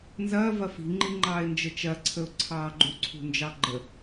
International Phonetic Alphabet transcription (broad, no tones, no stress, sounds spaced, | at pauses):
n z ɐː v ɐ f i̤ ŋ͡ǃ i ŋ͡ǃ ɑː ɪ̯ n d͡ʒ ə t͡ʃ ɐ ǀʰ ə ʊ̯ ǀʰ ɑː ɡ͡ǃ ṳ ǀʰ ṳ n d͡ʒ ɑ ɡ͡ǃ ə